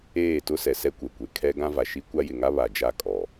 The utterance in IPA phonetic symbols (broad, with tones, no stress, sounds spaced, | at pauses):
eː˦˨ t ʊ˦ s ɛ˨ s ɛ˦ kʷ ɛ˨ kʷ e˨ kʰ ɛ˦ ɡ ã˦ v a˨ ʃ i˦ kʷ a˦ j ɪ˨ ŋ a˦ β a˨ d͡ʒ a˦˨ kʼ ɔ˨